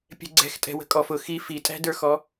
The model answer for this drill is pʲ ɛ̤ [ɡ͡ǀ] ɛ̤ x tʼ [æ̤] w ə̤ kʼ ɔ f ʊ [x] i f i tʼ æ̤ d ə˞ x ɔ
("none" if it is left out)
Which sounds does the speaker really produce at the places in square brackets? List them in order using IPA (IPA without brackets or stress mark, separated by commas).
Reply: ɡ͡ǀ, ɛ̤, x